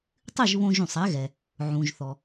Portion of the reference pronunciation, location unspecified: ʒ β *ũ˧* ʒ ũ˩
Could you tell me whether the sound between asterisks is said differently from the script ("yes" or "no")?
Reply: yes